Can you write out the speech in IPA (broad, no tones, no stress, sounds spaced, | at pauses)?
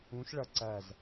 ũ ʃ ɭ ʌ ǀ æ z